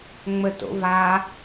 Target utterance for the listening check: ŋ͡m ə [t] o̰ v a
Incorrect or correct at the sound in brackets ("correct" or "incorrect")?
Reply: correct